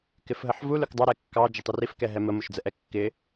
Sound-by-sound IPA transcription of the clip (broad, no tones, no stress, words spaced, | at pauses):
kɪfɦəħvu lʊkdˤɑ ɾɛkːɑ d͡ʒətˤʊrif kɛɦɛmə mʊʃd͡zəʔɛkːɪ